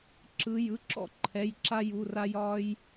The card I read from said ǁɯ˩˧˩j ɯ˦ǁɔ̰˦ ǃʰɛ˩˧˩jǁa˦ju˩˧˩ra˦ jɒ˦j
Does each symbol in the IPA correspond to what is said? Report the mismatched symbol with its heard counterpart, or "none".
none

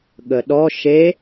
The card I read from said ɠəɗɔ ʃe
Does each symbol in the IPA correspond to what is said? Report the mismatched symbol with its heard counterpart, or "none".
none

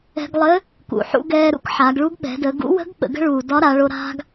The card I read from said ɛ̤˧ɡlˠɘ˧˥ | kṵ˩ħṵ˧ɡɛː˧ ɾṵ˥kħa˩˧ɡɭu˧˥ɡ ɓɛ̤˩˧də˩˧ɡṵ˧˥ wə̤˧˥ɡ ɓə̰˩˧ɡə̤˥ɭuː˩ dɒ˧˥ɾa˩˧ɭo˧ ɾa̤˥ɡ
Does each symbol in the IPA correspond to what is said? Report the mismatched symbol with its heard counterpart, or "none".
none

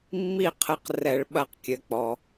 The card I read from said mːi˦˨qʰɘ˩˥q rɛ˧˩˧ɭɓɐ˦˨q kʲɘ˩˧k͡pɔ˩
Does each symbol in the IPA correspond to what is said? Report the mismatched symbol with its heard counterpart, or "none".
none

